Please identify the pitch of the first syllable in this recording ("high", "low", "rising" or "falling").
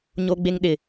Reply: high